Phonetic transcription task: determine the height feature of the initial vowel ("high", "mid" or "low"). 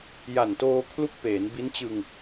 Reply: low